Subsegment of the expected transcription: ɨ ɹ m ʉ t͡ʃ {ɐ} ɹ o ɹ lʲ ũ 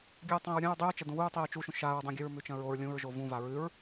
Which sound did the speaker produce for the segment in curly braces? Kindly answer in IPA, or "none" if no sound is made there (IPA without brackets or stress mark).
ɐ̃